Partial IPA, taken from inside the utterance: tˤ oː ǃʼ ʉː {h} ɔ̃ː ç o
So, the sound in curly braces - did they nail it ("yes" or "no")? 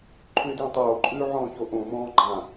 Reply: no